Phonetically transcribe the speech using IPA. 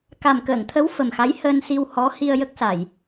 ka˨˩mkəː˨˩˨ŋt̪ʰə˧˥w fə˨˩mxa˧˥j həː˧nsi˧w hɔ˧˥ hi˧ə̯jə˦˥k̚sa˨˩˨j

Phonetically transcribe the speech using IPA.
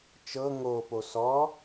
t͡ʃɤ ŋopo sɔ

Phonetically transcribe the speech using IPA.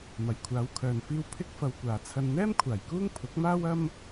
mɐ˨˩jkʷʰaː˨˧wkʰœː˨nfiː˧w pʰɪ˥k̚fɐ˧wkʷaː˨ t͡sʰɐ˧n n̪ɛː˥m kʷʰaː˨˩jkuː˥ŋ pʰʊ˨˥k̚maː˥wɐ˥m

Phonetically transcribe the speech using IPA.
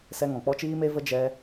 sɛ˦ŋɔ̃˨ k͡pɔ˦t͡ʃiː˦me˦və˦ d͡ʒɛ˦

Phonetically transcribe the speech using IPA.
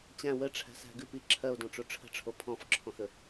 t͡ɕæ̃ wə ʈ͡ʂʰæ̤sæ̤ɡʉp iǁʰɜo̯dɔ̃ ʈ͡ʂoʈ͡ʂʰə̤ʈ͡ʂʰo pʰɔ̃fǁʰɔ̃xə

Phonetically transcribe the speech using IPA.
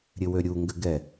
ɾʲɘwøɾʲu ŋɡɘɡɛ

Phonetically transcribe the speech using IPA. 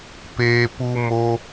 peː˧pu˦ mo˧

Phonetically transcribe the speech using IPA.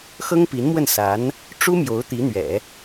xɤ˥ŋpi˧˥nmwə˥˩n sa˧˥n | ʈ͡ʂu˥mjo˧˥ʊ̯ t̪i˧˥n̪ɥɛ̰˨˩˦

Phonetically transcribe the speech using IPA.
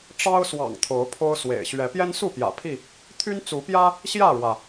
ʈ͡ʂɑ˦ʊ̯swɑ̰˨˩ŋ t̪ʰo˨˦ʊ̯pʰo˦ʊ̯swḛ˨˩ɪ̯ ɕɥɛ˨˦ pjɛ˦nsu˥˨ pjä̰˨˩pʰi˥˨ | t̪ʰy˦nt͡su˨˦pjä˦ | ɕjä˥˨ɻwä˩

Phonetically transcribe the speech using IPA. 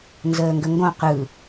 nzəːŋɡəŋɡõ qɯ

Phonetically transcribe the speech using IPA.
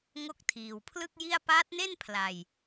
ŋo˦˥k̚tʰiː˨˩wpʰlɯ˥˩k̚ji˥˩a̯ paː˦˥t̚ne˥˩n pʰla˧j

